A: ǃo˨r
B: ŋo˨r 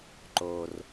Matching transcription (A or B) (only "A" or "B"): A